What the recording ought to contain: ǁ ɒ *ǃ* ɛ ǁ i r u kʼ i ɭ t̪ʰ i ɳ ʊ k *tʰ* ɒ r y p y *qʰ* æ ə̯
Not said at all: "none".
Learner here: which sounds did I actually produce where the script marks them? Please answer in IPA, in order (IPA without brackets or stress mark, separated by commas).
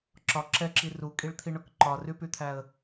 ǁ, ǃ, t̪ʰ